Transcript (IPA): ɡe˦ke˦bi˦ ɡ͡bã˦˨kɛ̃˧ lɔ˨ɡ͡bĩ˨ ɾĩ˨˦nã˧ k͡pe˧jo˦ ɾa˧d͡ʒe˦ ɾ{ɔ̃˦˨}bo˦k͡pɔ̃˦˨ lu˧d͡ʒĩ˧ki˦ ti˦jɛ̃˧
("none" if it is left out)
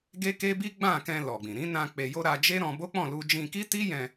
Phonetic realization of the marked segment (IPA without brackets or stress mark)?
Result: ɔ̃˧